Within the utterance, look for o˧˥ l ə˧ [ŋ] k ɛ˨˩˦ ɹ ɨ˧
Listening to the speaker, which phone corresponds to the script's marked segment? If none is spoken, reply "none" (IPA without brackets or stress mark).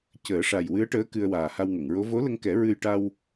ŋ